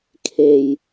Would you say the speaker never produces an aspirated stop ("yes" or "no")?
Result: no